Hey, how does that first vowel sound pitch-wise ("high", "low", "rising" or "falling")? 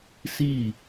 falling